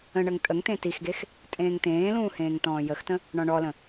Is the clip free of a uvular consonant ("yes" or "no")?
yes